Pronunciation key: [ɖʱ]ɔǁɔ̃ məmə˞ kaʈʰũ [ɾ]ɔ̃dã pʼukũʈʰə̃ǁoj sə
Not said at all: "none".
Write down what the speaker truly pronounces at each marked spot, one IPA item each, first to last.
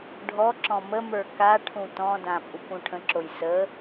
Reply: ɖʱ, t

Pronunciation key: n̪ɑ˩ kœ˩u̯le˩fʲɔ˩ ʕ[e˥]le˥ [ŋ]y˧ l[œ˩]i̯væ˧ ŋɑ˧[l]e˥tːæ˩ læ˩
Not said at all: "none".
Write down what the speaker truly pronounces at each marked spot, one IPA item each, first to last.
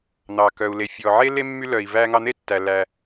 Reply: e˥, mː, œ˩, n̪

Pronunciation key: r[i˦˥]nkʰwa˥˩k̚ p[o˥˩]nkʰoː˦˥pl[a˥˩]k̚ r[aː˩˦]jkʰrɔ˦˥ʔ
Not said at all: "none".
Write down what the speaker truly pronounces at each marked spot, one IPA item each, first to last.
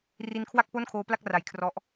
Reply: i˦˥, o˥˩, a˥˩, a˩˦

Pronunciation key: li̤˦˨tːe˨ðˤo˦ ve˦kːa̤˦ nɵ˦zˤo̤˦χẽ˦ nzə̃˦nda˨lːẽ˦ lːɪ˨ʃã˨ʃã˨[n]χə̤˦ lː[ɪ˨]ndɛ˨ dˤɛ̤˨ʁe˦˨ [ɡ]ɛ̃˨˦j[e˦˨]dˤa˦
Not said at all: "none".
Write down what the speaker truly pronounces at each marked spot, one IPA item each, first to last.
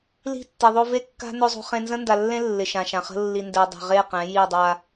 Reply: none, i˨, q, i˦˨

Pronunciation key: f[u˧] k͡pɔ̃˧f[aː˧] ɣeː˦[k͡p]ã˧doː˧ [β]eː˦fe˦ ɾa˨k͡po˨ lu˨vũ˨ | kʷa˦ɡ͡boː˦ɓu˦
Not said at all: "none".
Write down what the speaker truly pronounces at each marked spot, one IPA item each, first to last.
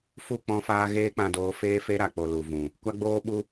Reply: u˦˨, aː˧, k͡p, f

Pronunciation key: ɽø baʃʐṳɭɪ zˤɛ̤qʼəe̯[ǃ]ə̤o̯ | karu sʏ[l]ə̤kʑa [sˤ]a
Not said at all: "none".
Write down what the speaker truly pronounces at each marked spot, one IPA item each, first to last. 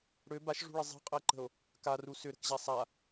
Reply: ǃ, ɾ, sˤ

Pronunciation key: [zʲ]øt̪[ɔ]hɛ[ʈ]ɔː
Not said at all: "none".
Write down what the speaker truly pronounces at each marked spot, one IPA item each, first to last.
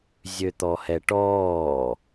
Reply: zʲ, ɔ, ʈ

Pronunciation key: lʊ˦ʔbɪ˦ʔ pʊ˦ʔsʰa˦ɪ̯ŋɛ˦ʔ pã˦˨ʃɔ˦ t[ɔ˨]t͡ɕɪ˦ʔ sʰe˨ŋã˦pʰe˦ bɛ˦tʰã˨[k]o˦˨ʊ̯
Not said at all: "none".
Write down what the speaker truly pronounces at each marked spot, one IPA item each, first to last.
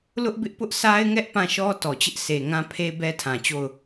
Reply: ɔ˨, t͡ɕ

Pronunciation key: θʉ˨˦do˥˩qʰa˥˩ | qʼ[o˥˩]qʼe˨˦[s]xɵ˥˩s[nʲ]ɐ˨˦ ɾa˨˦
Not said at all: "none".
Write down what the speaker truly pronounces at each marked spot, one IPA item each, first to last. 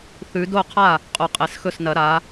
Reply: o˨˦, s, n

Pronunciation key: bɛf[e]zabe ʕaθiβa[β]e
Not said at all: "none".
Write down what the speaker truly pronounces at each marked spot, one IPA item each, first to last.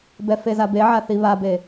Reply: e, b

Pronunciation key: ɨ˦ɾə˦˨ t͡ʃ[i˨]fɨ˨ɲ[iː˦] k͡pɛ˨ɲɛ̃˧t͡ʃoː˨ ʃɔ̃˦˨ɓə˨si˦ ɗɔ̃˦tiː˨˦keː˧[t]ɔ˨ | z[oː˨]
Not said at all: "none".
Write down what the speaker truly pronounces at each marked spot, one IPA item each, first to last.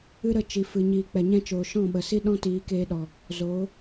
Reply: i˨, iː˨, ɗ, oː˨˦

